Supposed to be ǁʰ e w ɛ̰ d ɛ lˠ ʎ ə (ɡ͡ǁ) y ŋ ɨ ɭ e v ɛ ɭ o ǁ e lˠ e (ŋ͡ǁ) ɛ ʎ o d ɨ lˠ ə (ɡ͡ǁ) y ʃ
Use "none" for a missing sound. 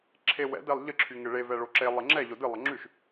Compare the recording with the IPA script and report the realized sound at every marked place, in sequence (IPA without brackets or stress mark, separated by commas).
ǁʰ, ŋ͡ǁ, ŋ͡ǁ